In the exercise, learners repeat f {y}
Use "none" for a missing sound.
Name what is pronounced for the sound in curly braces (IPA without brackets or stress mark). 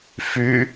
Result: y